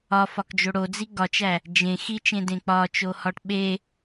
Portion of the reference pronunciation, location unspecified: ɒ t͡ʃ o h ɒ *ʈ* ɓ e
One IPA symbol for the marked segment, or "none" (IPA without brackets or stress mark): ʈ